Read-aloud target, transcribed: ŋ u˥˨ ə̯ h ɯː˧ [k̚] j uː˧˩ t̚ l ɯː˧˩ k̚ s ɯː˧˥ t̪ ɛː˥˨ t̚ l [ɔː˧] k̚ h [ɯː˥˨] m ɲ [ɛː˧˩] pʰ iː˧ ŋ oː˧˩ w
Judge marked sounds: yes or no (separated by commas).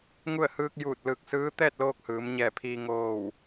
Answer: yes, no, no, yes